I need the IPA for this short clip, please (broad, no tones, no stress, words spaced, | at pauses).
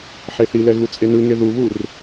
ħeθilɛ ɣut͡sʼenɯŋe ðuβur